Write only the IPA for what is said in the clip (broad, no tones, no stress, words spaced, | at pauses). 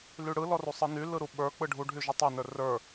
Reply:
lyɽɯlɔru sˤɯny lɯɾuɓə˞ k͡pɯɖʱuɖʱy ʒytˤynə˞ rə˞